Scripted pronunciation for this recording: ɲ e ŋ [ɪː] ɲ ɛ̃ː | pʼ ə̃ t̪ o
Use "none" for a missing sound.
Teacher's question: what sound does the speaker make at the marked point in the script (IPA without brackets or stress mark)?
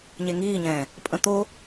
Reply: iː